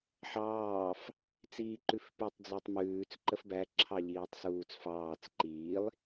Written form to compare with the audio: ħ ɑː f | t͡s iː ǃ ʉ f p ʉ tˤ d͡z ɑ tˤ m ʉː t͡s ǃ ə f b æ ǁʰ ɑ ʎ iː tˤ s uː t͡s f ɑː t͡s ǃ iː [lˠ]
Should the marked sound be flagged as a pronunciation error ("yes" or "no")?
no